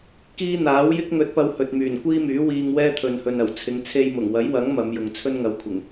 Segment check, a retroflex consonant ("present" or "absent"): absent